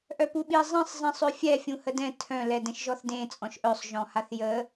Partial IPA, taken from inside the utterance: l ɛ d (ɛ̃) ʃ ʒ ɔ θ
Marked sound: correct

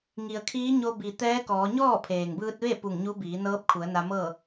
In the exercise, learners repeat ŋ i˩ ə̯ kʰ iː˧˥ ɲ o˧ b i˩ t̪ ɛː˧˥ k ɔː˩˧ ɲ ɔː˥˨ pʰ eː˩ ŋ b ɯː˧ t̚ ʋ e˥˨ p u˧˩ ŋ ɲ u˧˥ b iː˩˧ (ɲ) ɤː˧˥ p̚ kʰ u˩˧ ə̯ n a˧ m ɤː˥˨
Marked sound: incorrect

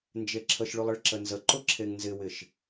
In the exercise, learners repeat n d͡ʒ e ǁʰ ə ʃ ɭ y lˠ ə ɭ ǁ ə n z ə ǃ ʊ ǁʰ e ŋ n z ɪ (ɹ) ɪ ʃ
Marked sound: incorrect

